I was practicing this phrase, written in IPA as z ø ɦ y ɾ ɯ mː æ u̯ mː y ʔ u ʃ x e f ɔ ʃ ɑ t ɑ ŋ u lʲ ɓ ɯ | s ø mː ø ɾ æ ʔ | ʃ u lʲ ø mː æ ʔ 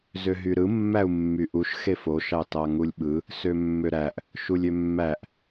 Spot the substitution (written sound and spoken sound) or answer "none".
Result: ɔ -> o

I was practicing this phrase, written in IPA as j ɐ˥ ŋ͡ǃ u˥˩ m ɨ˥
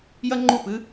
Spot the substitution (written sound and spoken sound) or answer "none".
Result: m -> p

